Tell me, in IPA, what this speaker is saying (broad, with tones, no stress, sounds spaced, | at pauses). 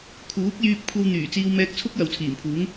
kʰ uː˨˥ k̚ j yː˧ p̚ kʷʰ ɐ˧ w n̪ yː˨˩ t͡s iː˧ w m ɛː˧ k̚ t͡sʰ ʊ˥ k̚ j ɐ˨ w t͡sʰ iː˨˩ m pʰ uː˨˥ ŋ